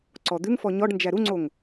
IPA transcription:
ǀɔd̪ʉŋfɔ ɲɔɖnd͡ʒæ ɾuŋ͡ǀoŋ

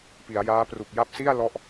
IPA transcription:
pi˩˦a̯jaː˦˥ pru˨˩k̚ja˦˥p̚si˥˩a̯ lɔ˥˩ʔ

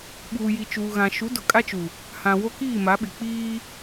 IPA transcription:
ɓuː˨ji˨t͡ʃuː˨ɣã˨ ʃu˨˦dʊ˨kʼa˦t͡ʃu˨ | hã˨ wo˦kiː˦˨ma˨˦ɓɪ˨ k͡piː˦

